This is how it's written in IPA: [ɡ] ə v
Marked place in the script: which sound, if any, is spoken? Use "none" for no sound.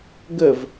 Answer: ɡ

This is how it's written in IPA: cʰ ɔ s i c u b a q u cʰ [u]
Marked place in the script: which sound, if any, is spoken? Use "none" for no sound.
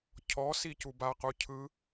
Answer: ɯ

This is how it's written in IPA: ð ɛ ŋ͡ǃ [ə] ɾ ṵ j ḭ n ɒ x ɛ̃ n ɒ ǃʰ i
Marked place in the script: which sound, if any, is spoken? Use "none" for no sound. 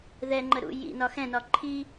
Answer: ə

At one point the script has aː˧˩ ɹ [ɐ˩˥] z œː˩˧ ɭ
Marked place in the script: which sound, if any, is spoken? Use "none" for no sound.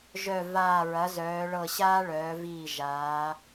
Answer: ɐ˩˥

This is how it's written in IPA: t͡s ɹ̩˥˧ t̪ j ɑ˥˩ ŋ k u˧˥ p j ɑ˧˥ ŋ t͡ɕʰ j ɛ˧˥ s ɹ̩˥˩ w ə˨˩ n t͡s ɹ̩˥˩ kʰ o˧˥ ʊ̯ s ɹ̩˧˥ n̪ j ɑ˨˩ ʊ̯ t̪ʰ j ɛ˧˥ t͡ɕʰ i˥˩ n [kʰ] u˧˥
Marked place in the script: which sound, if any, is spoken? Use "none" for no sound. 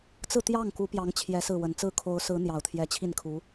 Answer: kʰ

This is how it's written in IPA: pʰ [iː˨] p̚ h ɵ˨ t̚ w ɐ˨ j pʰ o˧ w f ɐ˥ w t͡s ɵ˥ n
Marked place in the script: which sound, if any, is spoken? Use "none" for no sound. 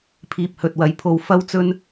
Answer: iː˨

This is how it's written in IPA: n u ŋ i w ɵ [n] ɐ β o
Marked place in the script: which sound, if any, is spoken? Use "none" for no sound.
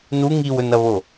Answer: n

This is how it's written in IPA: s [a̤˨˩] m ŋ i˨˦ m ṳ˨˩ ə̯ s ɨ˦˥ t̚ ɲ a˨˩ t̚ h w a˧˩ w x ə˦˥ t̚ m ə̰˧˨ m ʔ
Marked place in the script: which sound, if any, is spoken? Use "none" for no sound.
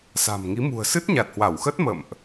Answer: a̤˨˩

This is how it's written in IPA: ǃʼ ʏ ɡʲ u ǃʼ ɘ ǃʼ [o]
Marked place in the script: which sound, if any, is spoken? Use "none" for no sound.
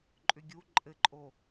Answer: o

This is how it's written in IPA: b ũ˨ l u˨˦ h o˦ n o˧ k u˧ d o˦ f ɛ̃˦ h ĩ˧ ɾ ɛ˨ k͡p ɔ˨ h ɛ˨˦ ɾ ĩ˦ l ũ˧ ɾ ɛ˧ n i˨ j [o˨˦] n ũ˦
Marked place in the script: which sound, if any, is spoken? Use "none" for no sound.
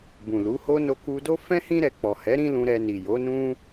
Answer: o˨˦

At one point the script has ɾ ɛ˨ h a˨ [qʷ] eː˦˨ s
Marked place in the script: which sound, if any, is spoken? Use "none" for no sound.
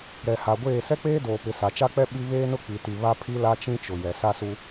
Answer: ɡʷ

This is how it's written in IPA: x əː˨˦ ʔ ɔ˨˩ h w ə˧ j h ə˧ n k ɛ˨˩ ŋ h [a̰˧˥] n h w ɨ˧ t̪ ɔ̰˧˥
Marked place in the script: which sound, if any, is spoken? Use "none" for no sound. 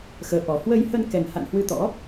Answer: a̰˧˨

